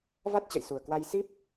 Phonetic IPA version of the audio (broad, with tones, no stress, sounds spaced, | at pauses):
v a˦˥ t̚ t͡ɕ ə̰˧˨ j s u˨˩ ə̯ k w a˧ j s i˦˥ p̚